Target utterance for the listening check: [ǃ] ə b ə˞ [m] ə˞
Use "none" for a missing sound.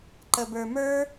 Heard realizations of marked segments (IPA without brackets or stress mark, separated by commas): ǃ, m